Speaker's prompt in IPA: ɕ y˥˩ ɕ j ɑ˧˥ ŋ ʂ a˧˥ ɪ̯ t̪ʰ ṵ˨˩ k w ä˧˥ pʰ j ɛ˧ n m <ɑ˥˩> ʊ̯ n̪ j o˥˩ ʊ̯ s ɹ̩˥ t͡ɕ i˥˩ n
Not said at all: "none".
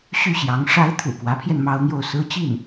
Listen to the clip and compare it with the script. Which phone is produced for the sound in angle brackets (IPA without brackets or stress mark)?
ɑ˥